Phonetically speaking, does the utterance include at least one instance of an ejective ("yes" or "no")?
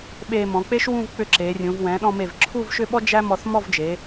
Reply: no